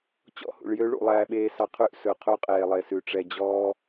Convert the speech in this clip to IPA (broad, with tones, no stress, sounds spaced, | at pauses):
t͡ɕ ɔ̰˦ h ṵ˨ ɭ j ø˦ ɭ ṵ˨˦ lˠ æː˦ ɓ eː˦ s ɑ˦ qʰ ʉ˦ ʔ s ɵ˨ qʰ u˦ qʼ eː˨ lˠ e˨ s ʉ˨ ʈ͡ʂ ɛ˨ d͡ʑ ɔː˦